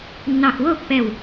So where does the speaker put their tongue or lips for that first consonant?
tongue tip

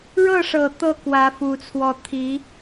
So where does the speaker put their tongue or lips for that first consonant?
retroflex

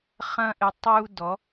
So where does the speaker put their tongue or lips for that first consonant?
uvula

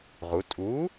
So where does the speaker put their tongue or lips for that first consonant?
uvula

